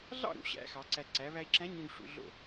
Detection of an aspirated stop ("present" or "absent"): absent